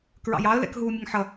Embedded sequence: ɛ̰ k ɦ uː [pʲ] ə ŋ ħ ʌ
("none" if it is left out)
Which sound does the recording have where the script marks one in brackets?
mʲ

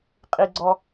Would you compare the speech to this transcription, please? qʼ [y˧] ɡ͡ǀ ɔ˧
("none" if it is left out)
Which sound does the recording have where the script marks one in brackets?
i˧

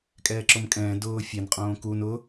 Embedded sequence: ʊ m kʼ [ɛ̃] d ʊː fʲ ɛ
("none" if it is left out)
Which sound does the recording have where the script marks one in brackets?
ɛ̃ː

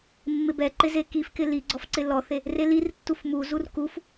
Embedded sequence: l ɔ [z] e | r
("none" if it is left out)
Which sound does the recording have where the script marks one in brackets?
θ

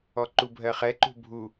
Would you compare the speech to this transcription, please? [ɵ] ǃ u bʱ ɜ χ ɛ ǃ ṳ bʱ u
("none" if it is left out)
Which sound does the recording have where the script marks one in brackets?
ɔ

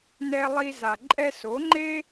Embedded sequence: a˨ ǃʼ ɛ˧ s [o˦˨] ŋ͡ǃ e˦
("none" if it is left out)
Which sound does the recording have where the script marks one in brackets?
o˨˦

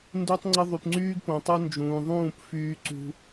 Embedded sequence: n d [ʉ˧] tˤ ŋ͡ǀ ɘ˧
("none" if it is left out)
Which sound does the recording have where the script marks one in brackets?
u˧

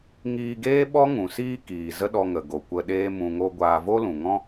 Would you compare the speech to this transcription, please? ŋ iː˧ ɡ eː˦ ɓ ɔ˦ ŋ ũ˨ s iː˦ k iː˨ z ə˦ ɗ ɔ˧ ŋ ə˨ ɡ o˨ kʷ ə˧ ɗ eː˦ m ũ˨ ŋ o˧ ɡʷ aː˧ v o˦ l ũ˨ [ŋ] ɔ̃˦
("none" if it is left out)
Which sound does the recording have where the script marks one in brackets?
ŋ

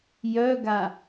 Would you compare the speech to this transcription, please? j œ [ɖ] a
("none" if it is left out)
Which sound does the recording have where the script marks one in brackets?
ɡ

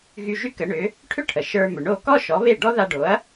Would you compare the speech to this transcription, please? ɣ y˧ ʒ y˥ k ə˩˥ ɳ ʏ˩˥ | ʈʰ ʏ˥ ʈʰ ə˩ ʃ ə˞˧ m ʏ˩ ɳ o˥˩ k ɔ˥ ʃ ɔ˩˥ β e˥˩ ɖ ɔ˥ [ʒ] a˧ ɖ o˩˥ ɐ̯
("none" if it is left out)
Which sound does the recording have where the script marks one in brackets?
ð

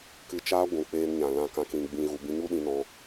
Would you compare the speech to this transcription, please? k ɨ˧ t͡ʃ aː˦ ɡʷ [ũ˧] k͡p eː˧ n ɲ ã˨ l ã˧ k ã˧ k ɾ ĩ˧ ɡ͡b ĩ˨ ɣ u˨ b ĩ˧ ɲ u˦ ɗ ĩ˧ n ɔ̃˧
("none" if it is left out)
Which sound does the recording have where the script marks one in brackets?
ũ˨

